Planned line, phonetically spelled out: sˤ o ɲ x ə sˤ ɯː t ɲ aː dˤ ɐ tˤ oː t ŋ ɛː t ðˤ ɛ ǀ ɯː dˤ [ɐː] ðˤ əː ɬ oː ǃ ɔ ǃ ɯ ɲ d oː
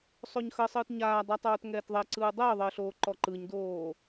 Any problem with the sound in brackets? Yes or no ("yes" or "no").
yes